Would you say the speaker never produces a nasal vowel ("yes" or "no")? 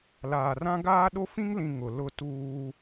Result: no